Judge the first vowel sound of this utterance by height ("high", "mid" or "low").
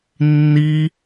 high